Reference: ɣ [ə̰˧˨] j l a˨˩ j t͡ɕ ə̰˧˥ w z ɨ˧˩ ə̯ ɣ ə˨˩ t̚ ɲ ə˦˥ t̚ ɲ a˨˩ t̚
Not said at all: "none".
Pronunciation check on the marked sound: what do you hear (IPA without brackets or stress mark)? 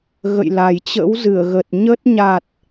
ə̰˧˨